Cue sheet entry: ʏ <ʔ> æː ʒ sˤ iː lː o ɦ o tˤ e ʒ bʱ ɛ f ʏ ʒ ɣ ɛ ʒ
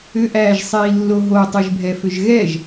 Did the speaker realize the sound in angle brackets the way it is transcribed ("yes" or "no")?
yes